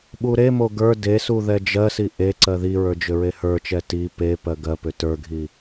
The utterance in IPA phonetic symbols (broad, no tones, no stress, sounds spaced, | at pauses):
ɓ u ɾ e m o ɡ ə˞ d e s u ð ɛ d͡ʒ ɜ s i ʔ e ǀ ɜ ð i ɹ ə˞ d͡ʒ ʏ ɹ e h ə˞ t͡ʃ ɛ t i p e p ɜ ɡ ɜ p ʏ t ə˞ ɡʱ i